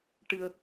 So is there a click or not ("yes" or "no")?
no